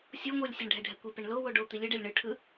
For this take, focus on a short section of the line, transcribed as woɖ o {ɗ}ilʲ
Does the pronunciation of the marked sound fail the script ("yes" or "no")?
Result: yes